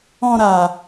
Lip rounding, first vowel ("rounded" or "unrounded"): rounded